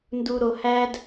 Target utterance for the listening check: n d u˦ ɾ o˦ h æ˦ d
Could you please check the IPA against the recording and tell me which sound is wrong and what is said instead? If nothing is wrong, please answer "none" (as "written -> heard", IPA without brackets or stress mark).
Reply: none